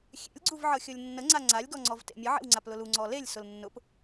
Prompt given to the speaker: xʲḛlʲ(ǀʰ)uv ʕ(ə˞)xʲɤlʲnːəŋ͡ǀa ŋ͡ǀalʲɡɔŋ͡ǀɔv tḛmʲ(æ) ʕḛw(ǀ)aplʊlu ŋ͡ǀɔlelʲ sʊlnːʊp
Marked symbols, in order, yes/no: no, no, no, no

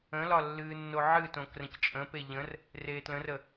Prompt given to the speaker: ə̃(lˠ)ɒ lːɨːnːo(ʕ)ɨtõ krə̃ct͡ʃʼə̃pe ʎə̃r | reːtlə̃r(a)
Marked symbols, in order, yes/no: no, yes, no

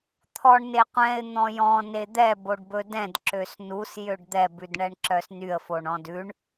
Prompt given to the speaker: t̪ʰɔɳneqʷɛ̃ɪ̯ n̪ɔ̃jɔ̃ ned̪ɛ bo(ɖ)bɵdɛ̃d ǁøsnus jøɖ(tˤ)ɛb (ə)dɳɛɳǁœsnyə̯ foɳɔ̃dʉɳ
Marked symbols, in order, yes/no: yes, no, no

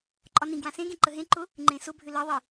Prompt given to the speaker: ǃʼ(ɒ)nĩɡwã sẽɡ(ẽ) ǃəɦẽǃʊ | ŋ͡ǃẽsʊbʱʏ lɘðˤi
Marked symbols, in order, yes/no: yes, yes

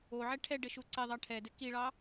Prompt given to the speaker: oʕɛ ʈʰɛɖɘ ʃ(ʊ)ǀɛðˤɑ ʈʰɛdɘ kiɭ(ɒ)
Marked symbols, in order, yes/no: no, no

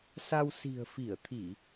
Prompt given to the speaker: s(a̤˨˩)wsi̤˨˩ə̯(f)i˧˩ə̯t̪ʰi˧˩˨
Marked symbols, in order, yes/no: no, yes

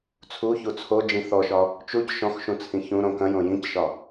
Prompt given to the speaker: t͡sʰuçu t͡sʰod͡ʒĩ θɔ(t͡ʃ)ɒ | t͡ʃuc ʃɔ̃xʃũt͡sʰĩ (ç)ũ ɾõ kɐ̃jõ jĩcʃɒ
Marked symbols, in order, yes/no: no, yes

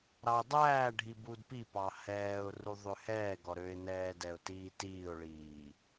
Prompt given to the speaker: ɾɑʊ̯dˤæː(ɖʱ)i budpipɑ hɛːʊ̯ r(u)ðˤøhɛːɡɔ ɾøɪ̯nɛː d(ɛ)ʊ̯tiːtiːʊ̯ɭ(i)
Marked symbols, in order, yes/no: yes, yes, yes, no

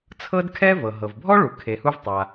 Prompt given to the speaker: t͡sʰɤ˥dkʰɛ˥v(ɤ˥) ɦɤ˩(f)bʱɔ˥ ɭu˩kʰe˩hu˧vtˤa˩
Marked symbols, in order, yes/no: no, no

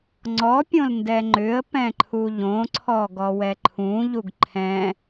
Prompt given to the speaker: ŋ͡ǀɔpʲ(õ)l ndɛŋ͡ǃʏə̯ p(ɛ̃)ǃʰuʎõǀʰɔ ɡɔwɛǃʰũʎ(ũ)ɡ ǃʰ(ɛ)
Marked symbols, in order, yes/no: yes, yes, no, no

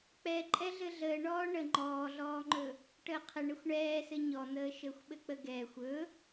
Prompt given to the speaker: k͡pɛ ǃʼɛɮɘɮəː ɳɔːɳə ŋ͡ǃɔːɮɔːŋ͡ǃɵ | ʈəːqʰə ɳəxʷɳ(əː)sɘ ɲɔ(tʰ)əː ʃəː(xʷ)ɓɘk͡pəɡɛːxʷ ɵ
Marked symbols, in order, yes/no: no, no, yes

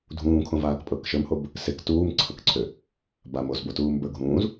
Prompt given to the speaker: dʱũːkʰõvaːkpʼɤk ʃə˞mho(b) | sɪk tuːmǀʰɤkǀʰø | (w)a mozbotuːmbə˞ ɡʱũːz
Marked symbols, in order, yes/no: yes, no

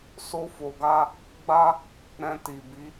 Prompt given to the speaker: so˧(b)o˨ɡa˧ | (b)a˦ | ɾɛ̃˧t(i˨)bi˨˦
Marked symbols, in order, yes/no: no, no, yes

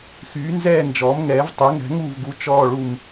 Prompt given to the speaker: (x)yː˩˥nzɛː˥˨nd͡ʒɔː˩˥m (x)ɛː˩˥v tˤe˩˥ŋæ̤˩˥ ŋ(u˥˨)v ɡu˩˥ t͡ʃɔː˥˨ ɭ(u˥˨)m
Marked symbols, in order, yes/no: yes, no, yes, yes

